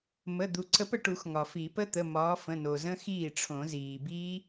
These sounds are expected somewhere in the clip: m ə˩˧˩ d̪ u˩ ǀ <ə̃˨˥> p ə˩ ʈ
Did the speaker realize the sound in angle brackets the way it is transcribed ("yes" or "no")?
no